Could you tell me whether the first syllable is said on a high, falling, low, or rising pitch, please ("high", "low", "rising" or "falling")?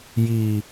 low